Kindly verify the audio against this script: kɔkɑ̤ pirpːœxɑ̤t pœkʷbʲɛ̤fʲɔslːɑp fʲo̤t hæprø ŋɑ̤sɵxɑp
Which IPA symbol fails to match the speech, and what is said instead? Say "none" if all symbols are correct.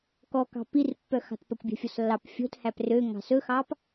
none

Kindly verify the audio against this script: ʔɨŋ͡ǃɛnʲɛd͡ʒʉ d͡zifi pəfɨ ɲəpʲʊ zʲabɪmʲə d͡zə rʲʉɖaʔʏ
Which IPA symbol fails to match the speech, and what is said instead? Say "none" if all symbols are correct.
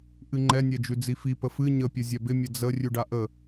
ʏ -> ə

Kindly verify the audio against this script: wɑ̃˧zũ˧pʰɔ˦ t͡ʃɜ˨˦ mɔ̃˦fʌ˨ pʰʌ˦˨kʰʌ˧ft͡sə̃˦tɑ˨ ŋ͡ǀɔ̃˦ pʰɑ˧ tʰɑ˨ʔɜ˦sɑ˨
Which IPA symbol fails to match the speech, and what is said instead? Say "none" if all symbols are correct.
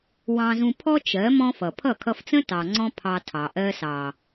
none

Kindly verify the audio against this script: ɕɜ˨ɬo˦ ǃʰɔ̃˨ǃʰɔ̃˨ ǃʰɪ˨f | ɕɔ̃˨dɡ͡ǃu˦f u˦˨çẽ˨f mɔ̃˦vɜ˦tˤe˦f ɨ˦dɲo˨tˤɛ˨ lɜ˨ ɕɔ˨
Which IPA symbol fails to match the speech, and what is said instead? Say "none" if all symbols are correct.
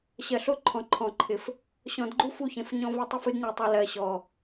m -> ɲ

